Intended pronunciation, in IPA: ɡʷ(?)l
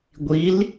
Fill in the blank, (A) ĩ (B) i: B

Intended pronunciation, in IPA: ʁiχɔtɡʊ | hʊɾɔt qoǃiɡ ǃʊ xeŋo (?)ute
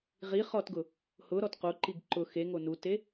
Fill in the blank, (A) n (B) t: A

